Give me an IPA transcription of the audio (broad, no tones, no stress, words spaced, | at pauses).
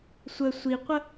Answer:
sʷə sʷiqʷə